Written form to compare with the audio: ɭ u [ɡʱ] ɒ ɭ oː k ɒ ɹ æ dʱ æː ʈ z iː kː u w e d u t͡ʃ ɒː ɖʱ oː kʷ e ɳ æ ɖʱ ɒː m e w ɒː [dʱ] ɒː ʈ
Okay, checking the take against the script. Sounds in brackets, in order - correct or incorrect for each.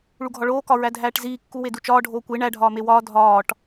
correct, correct

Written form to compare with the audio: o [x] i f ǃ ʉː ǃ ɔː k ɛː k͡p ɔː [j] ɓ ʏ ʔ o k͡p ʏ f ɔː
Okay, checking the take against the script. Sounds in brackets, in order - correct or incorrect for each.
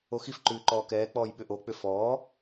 correct, correct

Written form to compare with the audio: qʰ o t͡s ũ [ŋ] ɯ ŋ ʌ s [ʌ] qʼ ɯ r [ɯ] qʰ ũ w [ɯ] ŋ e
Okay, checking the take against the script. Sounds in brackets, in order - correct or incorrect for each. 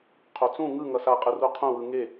correct, incorrect: a, incorrect: u, correct

